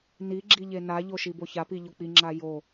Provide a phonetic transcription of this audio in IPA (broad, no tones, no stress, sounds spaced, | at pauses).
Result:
n i ɡ͡ǁ i ʎ e n a ʎ o ʃ i b o ç a p i ʎ o k͡p i ŋ͡ǁ a j o